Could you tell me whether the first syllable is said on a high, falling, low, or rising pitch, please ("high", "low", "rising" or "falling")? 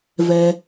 low